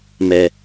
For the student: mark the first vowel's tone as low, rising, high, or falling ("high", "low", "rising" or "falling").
low